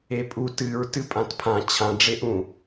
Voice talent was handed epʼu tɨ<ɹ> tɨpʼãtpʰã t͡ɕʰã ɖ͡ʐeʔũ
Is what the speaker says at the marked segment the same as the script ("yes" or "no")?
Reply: yes